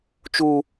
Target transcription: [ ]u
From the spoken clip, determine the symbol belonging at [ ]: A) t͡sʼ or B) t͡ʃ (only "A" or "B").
B